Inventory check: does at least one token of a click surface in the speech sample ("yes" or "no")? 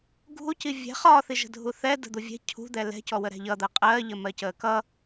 no